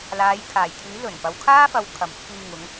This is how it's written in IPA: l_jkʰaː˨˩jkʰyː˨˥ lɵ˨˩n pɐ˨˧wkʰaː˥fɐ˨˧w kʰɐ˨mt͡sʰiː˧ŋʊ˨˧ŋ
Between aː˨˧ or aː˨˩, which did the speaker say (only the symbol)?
aː˨˧